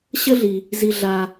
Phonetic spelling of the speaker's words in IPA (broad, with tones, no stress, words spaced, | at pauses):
ɕə˥ɮi˩ | zi˨ ɮa˨